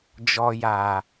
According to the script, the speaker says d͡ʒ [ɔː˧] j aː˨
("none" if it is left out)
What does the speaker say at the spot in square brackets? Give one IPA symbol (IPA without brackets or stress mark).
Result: ɔ˧